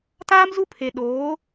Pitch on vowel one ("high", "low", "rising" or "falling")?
high